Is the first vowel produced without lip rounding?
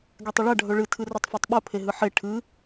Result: yes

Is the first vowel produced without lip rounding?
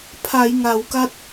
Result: yes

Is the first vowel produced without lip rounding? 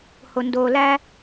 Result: no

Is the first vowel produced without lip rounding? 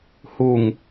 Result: no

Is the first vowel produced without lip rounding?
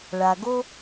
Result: yes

